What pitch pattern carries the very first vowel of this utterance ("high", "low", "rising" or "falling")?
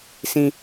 high